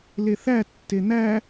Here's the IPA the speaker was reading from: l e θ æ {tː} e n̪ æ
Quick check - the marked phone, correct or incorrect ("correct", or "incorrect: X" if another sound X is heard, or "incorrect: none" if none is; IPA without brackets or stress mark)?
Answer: correct